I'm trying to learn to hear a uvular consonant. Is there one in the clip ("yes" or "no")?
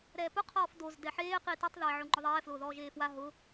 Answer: yes